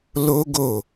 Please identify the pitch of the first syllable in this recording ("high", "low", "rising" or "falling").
high